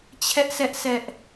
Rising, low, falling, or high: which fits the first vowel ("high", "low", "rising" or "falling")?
high